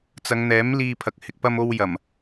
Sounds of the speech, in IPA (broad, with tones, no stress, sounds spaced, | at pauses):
t͡s ɐ˨˧ ŋ n̪ ɛː˨˥ m l iː˧ pʰ ɐ˨ k̚ h ɪ˧ k̚ p ɐ˥ m o˥ w j ɐ˨˩ m